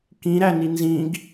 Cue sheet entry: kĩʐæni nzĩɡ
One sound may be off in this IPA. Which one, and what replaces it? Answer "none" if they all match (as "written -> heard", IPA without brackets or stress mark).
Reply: ʐ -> ɾ